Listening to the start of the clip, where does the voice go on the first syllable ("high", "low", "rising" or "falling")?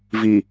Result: low